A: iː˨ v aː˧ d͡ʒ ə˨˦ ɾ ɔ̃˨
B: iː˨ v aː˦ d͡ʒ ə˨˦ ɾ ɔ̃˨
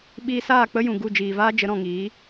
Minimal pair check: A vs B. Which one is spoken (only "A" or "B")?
B